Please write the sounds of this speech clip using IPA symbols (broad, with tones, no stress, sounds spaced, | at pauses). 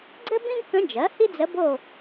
ɡ͡ǀ ɘ˥ b ĩ˥ ɡ k ə̃˧˥ d͡ʒ ɜ˩˥ h i˥ d͡z ə˧˥ b o˦˨